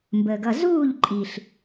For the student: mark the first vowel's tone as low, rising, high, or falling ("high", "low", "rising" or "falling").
low